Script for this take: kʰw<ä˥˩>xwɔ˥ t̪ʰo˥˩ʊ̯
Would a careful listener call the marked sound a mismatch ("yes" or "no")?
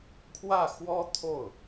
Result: no